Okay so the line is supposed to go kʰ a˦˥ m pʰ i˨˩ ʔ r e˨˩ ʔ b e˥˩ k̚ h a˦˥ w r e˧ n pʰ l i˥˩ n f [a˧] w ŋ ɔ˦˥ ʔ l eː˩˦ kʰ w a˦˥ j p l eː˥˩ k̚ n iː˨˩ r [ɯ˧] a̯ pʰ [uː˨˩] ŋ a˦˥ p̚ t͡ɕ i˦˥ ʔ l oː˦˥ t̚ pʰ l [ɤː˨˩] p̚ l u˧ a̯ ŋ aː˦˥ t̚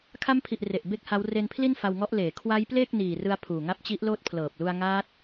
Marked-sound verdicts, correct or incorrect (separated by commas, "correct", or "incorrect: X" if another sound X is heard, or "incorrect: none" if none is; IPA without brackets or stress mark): correct, correct, correct, correct